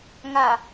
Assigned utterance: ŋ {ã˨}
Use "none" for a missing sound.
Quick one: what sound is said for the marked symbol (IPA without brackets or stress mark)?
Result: a˨